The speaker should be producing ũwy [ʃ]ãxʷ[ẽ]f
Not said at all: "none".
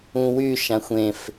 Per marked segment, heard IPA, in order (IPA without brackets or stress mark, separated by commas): ʃ, ẽ